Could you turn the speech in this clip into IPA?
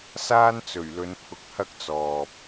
saː˥nt͡sɵ˨˩ɥlɵ˨˧npʰʊ˨˥k̚ hɐ˥k̚t͡sɔː˨p̚

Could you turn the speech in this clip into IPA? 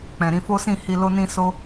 k͡pɛ̃˨ɾĩ˧fo˦sĩ˦˨ hi˧lo˦nĩ˦ so˦

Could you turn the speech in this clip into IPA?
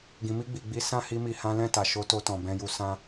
ɡĩ˨mi˧ɡ͡bi˨ɡ͡bi˨˦ sã˦˨hi˧mi˨ hã˨˦lɛ̃˦˨ta˨ ʃo˨˦to˧tɔ̃˨ bɛ̃˧ju˧ sã˧

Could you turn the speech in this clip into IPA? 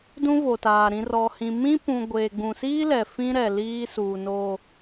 dũ˦vo˨taː˨ ɾĩ˨rɔ˨hĩ˨ mĩ˦pũ˨ ɡʷeː˨ɡ͡bũ˨siː˦lɛ˨ fĩ˦ɾɛ˨ liː˦suː˨no˨

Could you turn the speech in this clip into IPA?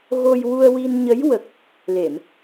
ɣo˧jwu˧ə̯wi˧nɲə˧˥j wə˨˩k̚ | le˨˩˨m

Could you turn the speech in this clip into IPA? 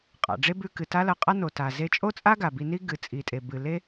qʼa̰˩ɖ͡ʐe˥bʉ˧ kɨ˩ta˥lɐ˧qʼa˥ no˩ta˩ ze˧t͡ʃʼo˥t͡sʼa˥ ɡa˩bi˧ni˥ ɡɨ˩ t͡sʼi˩tʼe˩bɨ˩le˥

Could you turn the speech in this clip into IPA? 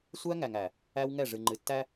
sʷæ˦ŋæ˨ŋæ˨ | æ˦wŋɛ˦˨ ʐɨ˨ŋ͡ǃɨ˨tːæ˦

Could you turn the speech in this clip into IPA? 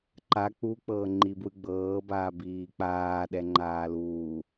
ǃa k͡puk͡pɤː ŋ͡ǃibwɯɡ͡bɤːbaː biːk͡paːɗɛ ŋ͡ǃaːluː

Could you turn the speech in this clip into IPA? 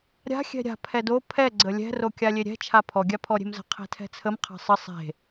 ɾʲa̤ xʲɛ̤ɾʲa̤ pʰɛdo pʰɛ ɡ͡ǀəlʲɛ̤ rokʲalʲeɾʲɛ̤ t͡ʃʰapʰɔ ɡʲapʰɔɾʲe̤mzə̤ qʰe̤tʰɛ̤t͡sʰəm qʰa̤sˤə sˤe̤

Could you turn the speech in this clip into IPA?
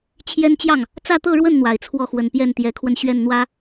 t͡ɕʰjɛ˥nt͡ɕjɑ˥˩ŋ | t͡sä˥˧t̪ɤ˥˧ɻwə˥˩n n̪wa˨˩ɪ̯t͡sʰwɔ˥˩xwə˨˩n pjɛ˥˩nt̪jɛ˧˥kʰwə˧n ɕɥɛ˥˩nn̪wä˥

